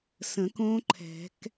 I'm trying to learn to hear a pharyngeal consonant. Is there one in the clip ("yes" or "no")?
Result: no